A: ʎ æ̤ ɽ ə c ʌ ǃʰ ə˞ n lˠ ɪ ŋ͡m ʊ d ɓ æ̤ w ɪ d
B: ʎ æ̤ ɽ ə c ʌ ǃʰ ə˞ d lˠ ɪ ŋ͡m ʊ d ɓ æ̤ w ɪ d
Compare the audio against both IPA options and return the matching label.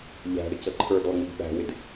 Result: B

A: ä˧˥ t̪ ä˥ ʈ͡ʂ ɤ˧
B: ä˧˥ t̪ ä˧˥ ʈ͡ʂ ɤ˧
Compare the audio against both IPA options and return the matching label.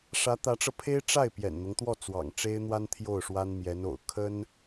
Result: B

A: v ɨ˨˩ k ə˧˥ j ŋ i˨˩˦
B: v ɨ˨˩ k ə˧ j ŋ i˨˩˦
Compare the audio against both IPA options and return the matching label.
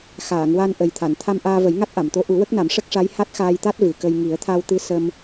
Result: B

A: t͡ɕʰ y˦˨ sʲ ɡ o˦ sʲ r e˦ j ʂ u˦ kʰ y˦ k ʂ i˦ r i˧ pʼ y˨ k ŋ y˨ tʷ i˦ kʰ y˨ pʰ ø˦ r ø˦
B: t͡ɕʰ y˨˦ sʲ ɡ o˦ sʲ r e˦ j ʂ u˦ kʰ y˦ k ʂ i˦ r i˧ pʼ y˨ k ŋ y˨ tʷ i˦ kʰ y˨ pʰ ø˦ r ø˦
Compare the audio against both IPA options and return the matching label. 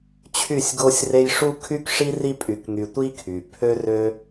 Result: A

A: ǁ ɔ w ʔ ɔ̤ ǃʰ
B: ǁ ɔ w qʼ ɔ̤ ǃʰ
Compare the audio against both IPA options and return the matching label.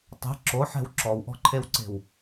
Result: A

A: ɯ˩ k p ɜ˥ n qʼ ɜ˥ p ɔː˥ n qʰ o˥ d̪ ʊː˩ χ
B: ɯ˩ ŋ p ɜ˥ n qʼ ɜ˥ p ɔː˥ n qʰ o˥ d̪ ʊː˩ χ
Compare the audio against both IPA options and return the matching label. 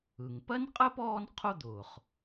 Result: B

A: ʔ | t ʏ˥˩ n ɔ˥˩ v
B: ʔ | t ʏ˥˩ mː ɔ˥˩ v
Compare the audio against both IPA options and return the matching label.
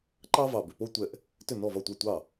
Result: A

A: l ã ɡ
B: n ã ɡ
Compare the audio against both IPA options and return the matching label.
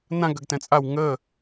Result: B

